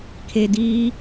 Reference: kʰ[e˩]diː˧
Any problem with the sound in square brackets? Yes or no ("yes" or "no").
no